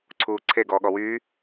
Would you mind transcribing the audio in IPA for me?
ǀʰ uː ǀʰ e ɡ ɔː ɠ ɔ w yː

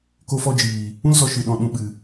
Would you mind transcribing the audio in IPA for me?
k o˧ f ɔ˧ d͡ʒ iː˨ | ũ˦ l z ɔ˧ ʃ ɨ˨ ɗ ɔ̃˨ ɗ ũ˨ ɓ ɨ˨

